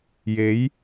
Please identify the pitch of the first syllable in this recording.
rising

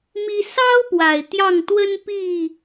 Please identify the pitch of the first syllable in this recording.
high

